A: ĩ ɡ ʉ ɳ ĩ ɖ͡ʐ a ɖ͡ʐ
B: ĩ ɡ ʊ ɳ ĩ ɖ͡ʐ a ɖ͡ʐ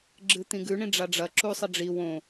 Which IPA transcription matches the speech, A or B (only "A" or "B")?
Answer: A